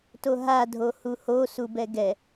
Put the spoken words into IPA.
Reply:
t o ɦ a dʱ o h u h o s u b ɛ ɡ ɛ

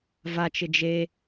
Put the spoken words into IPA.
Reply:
v a t͡ʃ ɪ d͡ʒ e

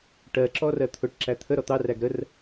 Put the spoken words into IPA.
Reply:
ʈ ɜ ǁ ɔ r ɜ t̪ʰ ʊ ʈ ǁ æ t̪ʰ ə ɾ ɔ t̪ ɑ r æ ɡ ɾ ə r

